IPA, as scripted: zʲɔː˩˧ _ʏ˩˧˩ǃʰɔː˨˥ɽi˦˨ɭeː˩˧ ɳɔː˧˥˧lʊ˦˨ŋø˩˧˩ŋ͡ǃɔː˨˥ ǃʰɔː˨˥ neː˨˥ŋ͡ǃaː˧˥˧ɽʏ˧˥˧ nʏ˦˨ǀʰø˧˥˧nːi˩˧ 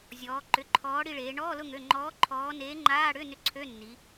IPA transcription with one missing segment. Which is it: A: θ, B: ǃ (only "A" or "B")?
B